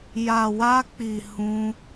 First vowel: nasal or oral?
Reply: oral